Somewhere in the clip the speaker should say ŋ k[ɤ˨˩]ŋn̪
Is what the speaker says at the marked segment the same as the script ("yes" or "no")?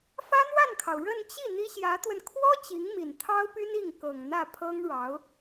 yes